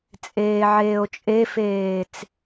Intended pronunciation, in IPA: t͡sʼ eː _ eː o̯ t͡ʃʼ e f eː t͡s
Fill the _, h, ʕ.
ʕ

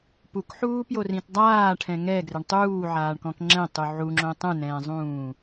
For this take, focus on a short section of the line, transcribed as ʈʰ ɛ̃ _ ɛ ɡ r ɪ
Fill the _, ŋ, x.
ŋ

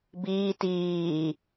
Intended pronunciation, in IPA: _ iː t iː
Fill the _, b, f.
b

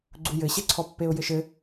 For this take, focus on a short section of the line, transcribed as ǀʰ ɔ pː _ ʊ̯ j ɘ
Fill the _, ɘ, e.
e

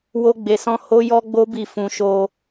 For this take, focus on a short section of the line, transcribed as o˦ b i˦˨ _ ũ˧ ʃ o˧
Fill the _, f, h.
f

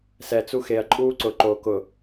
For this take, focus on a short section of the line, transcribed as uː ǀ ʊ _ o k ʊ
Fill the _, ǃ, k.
ǃ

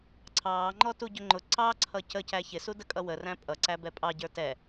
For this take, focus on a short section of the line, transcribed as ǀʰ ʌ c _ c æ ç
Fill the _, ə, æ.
ə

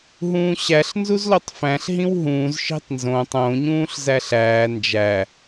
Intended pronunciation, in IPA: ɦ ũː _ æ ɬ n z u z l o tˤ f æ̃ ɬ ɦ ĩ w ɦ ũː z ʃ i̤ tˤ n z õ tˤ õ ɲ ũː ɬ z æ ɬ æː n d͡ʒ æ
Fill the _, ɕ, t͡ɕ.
ɕ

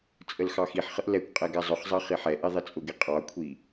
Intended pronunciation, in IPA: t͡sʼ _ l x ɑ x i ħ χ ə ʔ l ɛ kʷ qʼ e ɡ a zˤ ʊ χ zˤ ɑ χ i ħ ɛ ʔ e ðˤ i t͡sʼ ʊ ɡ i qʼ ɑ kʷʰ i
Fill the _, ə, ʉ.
ə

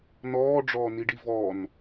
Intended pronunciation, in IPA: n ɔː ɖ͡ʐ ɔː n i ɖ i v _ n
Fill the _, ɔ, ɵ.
ɔ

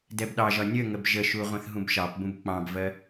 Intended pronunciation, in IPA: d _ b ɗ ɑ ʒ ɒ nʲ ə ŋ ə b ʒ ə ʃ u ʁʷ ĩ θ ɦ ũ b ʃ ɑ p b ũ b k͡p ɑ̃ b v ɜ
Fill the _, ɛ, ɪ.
ɛ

